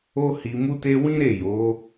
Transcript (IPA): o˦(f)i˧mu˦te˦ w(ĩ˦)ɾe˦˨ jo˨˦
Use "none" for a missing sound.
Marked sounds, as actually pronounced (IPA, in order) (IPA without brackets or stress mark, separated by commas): h, ĩ˦